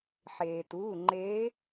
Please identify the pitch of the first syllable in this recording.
low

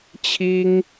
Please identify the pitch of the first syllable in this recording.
high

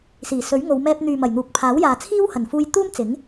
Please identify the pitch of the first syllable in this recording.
low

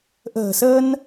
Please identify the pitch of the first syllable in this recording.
low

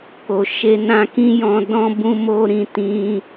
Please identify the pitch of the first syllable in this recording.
low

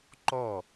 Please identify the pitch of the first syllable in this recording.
falling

